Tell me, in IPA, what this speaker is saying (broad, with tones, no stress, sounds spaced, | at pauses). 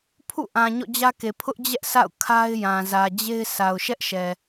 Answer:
pʰ ṵ˦˨ ʔ ã˨ ɲ ɔ̰˦˨ d͡ʑ ä˦ k e˨ pʰ ʊ˦ ʔ d͡ʑ ɛ˦ ʔ sʰ a̰˦˨ ʊ̯ kʰ a˦ ɪ̯ j ã˨ z ä˨ d͡ʑ e˦ ɪ̯ sʰ a˨ ʊ̯ ʃ ɛ˦ ʔ ʃ ɛ˨